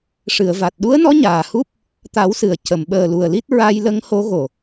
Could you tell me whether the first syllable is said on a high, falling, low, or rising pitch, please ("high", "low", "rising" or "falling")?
low